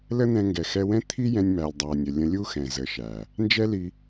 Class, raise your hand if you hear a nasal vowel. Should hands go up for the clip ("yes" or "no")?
yes